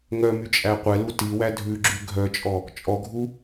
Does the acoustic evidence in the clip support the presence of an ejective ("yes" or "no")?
yes